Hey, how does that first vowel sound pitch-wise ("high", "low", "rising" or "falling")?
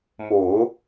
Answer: low